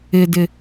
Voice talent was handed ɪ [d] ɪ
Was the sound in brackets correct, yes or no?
yes